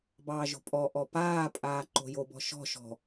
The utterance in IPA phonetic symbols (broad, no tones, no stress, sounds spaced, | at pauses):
b ɑː ʒ o̤ pʼ ɔ ʔ ɔ p aː pʼ aː ǃ o̤ j o b ɔ̤ ʃ ɔ̤ ʃ ɔ̤